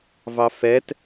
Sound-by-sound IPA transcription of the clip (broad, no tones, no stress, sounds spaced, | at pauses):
v ɑ f ɛ t